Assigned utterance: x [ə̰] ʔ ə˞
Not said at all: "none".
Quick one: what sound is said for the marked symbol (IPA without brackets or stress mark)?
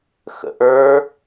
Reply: ə̰